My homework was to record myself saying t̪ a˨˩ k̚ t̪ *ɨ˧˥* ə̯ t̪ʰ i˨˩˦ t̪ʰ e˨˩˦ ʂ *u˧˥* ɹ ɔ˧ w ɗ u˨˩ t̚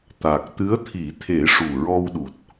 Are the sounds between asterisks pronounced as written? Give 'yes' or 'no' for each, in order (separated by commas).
yes, no